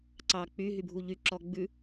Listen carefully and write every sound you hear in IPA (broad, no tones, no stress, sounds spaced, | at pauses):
ǀ ɑ k͡p y ɦ y bʱ u ʎ y ǁ ɔ ɡ͡b ʉ